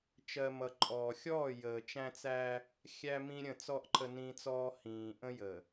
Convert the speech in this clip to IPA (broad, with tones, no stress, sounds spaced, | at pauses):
t͡ʃ ɜ˨ m ʌ˨ ǃʼ ɔː˨ xʲ ɔː˦˨ j əː˨ t͡ʃ æ̃˦ t͡s æ˦ | xʲ æ˦ m ĩ˦ ɾʲ ə̃˦˨ t͡s ɔ˦ ʔ ǃʰ ə˦ n ĩ˦ t͡s ɔː˦ h ĩː˨ ʔ ə̃˦ j ə˨